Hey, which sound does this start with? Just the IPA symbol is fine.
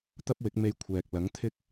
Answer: t̪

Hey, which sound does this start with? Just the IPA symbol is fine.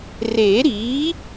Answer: r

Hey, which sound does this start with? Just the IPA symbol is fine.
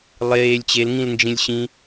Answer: lˠ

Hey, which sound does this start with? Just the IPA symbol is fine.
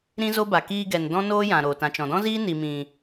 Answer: ɾ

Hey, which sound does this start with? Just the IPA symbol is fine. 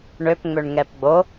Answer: ɳ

